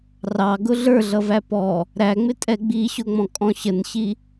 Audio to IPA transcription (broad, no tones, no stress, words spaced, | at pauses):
rɑɡʊ ɮə˞ɮʌ væpɔ | ɾæŋ͡mɪtʼɛ ɡ͡biɕʊŋ͡mɔ̃ kʼɔ̃ɕənɕi